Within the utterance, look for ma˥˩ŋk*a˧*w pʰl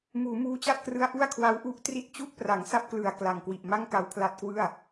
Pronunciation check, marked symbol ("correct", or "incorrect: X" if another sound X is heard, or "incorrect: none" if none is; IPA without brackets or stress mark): correct